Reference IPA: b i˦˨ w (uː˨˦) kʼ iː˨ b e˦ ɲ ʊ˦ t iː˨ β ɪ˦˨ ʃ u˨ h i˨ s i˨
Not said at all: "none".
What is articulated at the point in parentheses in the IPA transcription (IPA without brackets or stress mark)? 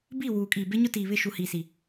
uː˨